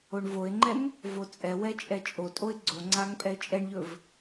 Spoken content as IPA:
o ɳ v o ɪ̯ ŋ͡ǃ ɛ ŋ | v o t͡sʼ ɛ w ɛ t͡ʃʼ ɛ t͡ʃʼ o tʼ o ɪ̯ ɡ͡ǀ o ŋ͡ǀ a ŋ pʼ ɛ ɪ̯ t͡ʃʼ ɛ ɳ ʎ ɵ v

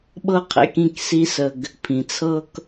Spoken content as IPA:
ɓ ɤ˦ qʰ ḛ˨ k ĩ˦˨ k s i˦ s ə˧ ɡ | pʰ ĩ˨ t͡sʰ ɤ˦ k

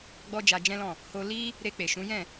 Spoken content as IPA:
ɡ͡b ɔ˦ d͡ʒ a˧ d͡ʒ ɛ̃˦ l ɔ̃˦˨ | h o˧ l i˦ | ɾ e˧ k͡p e˨ ʃ ũ˨˦ j ɛ̃˦˨

